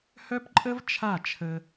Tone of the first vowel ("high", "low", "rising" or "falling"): high